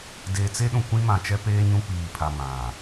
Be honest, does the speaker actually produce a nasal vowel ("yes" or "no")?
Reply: yes